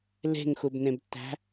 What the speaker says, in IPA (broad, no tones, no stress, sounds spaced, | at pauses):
l e̤ ŋ x u b n ẽ b tː æ̤